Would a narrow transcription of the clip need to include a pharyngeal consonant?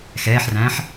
yes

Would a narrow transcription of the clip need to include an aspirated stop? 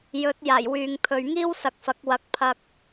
yes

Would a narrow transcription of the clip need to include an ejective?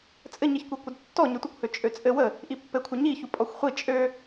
yes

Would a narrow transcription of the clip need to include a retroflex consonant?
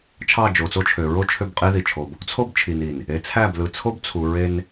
no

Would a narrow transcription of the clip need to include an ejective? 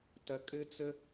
yes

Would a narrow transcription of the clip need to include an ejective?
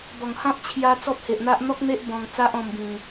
no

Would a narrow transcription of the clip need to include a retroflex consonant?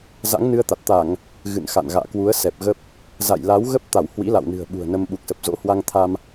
no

